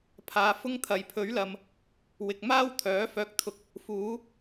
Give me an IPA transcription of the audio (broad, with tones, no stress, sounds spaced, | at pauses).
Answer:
pʰ aː˨ f ʊ˥ ŋ t̪ʰ ɐ˨ j pʰ ɵ˨˥ ɥ l ɐ˨ m | w ɪ˨ k̚ m aː˥ w t̪ʰ œː˨˥ f œː˧ k̚ t̪ʰ ʊ˧ k̚ | f uː˨˥